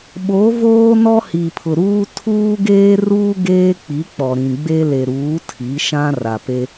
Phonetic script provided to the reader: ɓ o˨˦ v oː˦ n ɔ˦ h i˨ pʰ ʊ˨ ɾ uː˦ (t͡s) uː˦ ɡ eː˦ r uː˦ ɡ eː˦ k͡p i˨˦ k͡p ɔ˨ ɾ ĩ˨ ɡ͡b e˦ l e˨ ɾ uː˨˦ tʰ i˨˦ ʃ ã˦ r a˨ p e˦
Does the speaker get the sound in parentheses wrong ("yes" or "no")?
yes